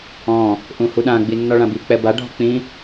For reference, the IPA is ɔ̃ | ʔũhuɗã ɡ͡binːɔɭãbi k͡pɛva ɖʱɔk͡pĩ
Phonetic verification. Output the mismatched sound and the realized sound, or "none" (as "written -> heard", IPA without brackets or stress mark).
v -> b